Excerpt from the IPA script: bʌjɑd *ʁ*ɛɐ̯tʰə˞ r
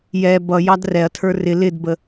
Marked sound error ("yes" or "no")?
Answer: yes